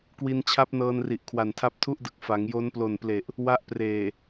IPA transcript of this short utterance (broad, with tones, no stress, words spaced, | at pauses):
kwi˧nt͡ɕʰa˦˥p̚nɤː˧nri˨˩ʔ kʰwa˨˩ntʰa˦˥p̚tʰu˥˩ʔdɯ˨˩k̚ fa˩˦ŋjo˦˥nplo˨˩nple˨˩ʔ | wa˦˥ʔpreː˨˩